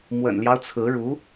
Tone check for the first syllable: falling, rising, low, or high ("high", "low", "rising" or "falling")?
low